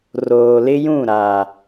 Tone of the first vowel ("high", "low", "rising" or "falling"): low